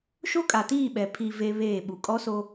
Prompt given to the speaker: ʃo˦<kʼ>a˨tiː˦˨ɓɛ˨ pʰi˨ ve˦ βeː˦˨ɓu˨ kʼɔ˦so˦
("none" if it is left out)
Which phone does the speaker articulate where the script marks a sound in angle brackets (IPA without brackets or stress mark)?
kʼ